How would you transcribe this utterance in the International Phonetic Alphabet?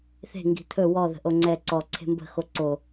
θ e̤ ŋ ɡ i̤ t̪ʰ ɵ w ɔ ð ə̤ ʔ o ŋ͡ǀ ɛ ǀ ɔ ǀʰ e̤ m b ə̤ x o ǀ o

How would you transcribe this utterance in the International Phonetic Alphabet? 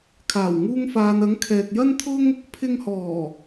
kʰ aː˨˩ w ŋ uː˧ ŋ f aː˨ n ɐ˨˥ ŋ kʰ ɛː˨ k̚ j ɐ˥ n t̪ʰ ʊ˥ ŋ | pʰ ɪ˧ ŋ h ɔː˨˩

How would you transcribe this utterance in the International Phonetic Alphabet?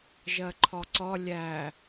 ʒ ɜ ǃʰ ɒ ǀ ɒ lʲ æ

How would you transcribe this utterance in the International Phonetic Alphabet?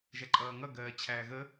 ʒ æ ǃʼ ʌː ŋ ʌ ɡ ɜː t͡ɕʰ æː ɣ ə

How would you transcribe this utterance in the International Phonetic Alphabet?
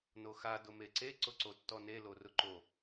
n o x a d ʊ m e ǀ e ǀ ʊ ǀ o tː ɔ n e l o r ʊ ǃ o

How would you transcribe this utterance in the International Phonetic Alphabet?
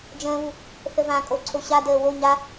d͡ʒ ə̃ː β u | θ ə v ã kʼ o ǀʰ o ɕ a d əː w o ɲ a

